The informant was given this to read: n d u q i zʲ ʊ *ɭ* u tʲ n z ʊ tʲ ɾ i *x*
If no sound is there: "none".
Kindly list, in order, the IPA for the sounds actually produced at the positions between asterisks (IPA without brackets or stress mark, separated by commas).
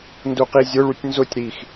ɭ, x